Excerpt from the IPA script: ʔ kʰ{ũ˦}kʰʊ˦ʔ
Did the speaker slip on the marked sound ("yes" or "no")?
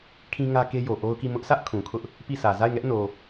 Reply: yes